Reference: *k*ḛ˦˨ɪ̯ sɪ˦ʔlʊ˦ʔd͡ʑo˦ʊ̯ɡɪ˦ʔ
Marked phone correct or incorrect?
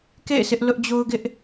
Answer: correct